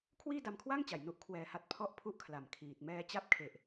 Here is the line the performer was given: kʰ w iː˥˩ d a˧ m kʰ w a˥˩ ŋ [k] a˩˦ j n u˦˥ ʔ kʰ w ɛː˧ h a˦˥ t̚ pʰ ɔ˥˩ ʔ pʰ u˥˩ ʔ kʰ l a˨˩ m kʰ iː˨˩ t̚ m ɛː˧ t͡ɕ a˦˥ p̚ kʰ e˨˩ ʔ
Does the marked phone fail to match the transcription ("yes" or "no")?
yes